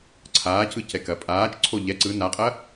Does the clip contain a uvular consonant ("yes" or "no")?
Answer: yes